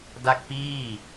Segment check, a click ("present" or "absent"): absent